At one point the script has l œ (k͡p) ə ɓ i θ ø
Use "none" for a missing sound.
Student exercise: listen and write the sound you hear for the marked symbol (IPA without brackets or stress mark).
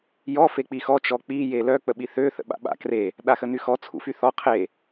k͡p